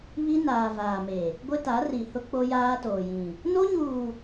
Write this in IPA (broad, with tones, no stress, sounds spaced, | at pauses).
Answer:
β i˦ n aː˨ v aː˨ m e˨ | ɡʷ ɪ˦ t a˨˦ r i˨ h ʊ˦ k͡p o˦ j aː˦ t oː˨ j ĩ˨ | n o˦ ɲ uː˨